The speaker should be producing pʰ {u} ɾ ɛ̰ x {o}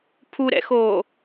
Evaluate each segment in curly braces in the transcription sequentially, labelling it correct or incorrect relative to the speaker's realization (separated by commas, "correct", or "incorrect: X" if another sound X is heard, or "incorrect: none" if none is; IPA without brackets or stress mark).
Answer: correct, incorrect: oː